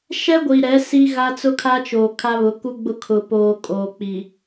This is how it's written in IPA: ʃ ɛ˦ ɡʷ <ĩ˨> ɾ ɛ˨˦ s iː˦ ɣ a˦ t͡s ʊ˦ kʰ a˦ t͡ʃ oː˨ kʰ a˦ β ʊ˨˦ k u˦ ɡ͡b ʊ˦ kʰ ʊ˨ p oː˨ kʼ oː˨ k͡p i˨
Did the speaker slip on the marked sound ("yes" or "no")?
yes